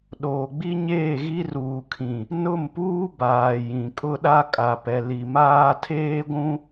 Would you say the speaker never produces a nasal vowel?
no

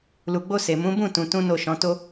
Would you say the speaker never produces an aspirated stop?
yes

